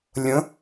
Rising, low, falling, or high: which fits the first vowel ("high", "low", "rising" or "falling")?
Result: rising